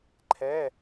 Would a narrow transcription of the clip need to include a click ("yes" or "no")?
yes